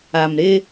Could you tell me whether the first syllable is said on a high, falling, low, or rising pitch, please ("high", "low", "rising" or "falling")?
low